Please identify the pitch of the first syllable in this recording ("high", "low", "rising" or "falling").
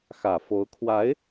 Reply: low